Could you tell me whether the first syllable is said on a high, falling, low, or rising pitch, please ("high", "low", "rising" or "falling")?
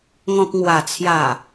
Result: low